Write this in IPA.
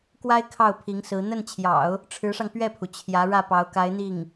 k w a˥ ɪ̯ kʰ ɑ˥˩ ʊ̯ pʰ i˧˥ ŋ s ɹ̩˧˥ n̪ ə˥˩ n t͡ɕʰ j ɑ̰˨˩˦ ʊ̯ | ʈ͡ʂʰ ɻ̩˧˥ ʂ ɑ˧ ŋ p ɥ ɛ˥˩ pʰ u˩ t͡ɕʰ j ä˧˥ ɻ ä˥˩ p ɑ˧˥ ʊ̯ k a˧˥ ɪ̯ n̪ i˥˩ ŋ

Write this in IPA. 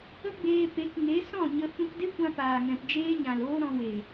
ə˦ ɡ͡b eː˧ p e˨˦ k ŋ e˨˦ s ɔ̃˦˨ ɲ ə˧ f ũ˧ k d e˦ kʷ ã˧ p aː˨ ŋ ɛ̃˨ p d͡ʒ eː˦ ɲ ã˨ l oː˦ ɾ ɔ̃˧ w e˨

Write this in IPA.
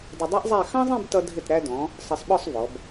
d ʌ˧ dˤ ɛ˥ ʔ zˤ æ˥˧ x ɑ̃˥ zˤ ĩ˥˧ b t ʌ˧ dʱ ɪ˧˩ t ɾ æ˧ d ɔ̃˩˧ | sˤ ʌ˧ sˤ ɓ ɔ˥˧ sˤ v ɔ˩˧ b

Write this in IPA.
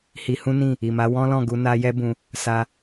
h i˧ h ũ˦ n ĩ˦˨ | i˨ m a˨˦ w ɔ̃˦ l ɔ̃˦˨ ɡ u˧ n a˦ j ɛ˦ b ũ˧ | s a˧

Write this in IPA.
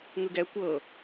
ŋ ɯ ɡ ɛ kʷ ɤ

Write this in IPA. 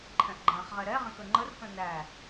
ǃʰ ɛ̃ ʔ ɡ͡ǃ ã χ ʁ ɛ ɾ ɛ ʁ ɛ̃ k ə ŋ͡ǃ ə r k ə̃ n æ

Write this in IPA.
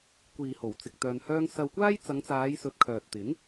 kʷ iː˨ h o˨˩ w t͡s ɪ˨ k̚ t̪ œː˧ n h œː˥ ŋ s ɐ˧ w kʷ aː˥ j t͡s ɐ˨˧ ŋ t͡s aː˨˧ j s ɵ˨ t̚ kʰ œː˨ t̚ t̪ ɪ˨˥ ŋ

